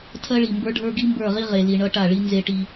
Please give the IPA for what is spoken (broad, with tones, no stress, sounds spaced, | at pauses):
tʰ ɜ˦ ɭ i˨ m b ə˞˦ ɖʱ ə˞˦ ɡ i˦ m b ə˞˦˨ ʁ i˦ ʁ e˨ l i˨ ɳ ʌ˦ ʈ a˦˨ ɭ i˦ n z e˦ ʈ i˦